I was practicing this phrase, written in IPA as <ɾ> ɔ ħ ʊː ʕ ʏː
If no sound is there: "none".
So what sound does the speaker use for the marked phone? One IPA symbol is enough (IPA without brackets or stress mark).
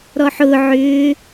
ɾ